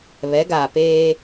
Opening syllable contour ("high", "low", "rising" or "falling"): rising